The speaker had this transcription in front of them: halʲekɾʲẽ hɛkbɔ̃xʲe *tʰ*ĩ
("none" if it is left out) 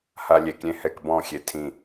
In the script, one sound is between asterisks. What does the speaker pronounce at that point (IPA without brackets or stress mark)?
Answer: tʰ